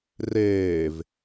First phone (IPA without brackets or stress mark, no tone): r